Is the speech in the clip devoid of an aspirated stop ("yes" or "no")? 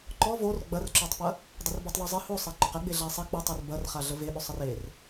yes